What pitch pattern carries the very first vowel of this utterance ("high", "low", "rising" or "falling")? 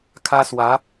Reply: high